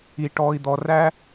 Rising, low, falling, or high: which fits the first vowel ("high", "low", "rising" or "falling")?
low